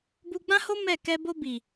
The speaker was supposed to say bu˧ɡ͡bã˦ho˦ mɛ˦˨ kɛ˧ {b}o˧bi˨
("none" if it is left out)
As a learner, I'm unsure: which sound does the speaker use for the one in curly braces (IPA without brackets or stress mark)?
b